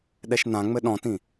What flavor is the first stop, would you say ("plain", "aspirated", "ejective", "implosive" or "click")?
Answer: implosive